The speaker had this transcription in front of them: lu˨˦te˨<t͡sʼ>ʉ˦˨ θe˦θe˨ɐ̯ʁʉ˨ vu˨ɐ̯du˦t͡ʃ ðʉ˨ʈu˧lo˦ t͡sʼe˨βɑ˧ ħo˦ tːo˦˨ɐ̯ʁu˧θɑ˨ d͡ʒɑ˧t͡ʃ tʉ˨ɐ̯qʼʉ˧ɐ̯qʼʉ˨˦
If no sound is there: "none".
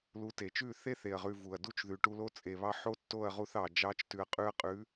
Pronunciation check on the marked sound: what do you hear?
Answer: t͡ʃ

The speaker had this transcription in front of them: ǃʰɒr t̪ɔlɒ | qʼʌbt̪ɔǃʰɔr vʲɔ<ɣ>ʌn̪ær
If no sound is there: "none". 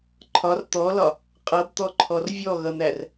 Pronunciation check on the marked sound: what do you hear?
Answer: ɣ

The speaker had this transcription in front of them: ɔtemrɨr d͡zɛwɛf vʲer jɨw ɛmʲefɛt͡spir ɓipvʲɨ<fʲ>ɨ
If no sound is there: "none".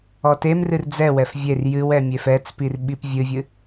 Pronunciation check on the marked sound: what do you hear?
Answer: vʲ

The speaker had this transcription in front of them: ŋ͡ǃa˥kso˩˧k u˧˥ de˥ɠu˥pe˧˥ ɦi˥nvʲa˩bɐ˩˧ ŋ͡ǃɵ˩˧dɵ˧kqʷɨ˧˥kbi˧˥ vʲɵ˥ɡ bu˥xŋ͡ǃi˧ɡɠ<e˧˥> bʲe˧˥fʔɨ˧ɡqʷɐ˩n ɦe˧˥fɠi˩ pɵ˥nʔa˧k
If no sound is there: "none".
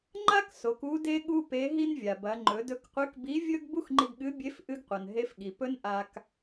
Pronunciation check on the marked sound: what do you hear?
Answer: ɨ˧˥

